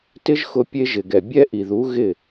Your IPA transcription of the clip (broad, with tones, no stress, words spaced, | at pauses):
tɪ˦ʒxʊ˧ pʲe˧ʒɪ˨ɡɛ˨ bʲɛ˧ ʔi˨ðu˨˦ ɣɪ˦˨